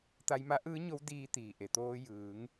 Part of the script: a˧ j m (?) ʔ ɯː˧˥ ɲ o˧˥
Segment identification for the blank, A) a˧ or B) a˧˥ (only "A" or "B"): B